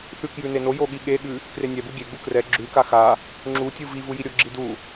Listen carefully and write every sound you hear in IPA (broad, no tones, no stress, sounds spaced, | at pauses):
θ ʉ k j ʉ n e n o j o ɠ i ɠ e ɠ ʉ | k r e nʲ ɛ b u ɡʲ e ɡ͡b u k r ɛ ɡ͡ǁ ʉ k a x a | ŋ͡ǁ u tʲ u v i v u j i ɾʲ o ɡ͡ǁ i d u